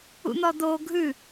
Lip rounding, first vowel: rounded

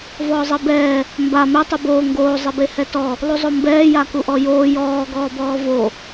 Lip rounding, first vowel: rounded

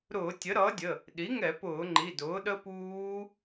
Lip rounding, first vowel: rounded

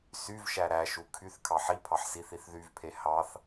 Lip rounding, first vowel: rounded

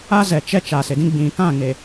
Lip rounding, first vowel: unrounded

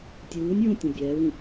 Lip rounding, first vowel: rounded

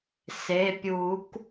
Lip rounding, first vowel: unrounded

